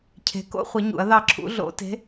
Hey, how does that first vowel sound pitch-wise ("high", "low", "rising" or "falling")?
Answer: rising